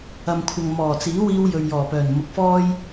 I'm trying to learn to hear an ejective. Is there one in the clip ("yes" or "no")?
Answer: no